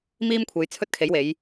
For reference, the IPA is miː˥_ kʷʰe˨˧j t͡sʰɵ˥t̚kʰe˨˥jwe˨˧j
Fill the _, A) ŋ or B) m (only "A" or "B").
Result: B